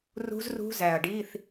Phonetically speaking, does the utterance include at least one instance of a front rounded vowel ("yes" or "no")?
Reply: no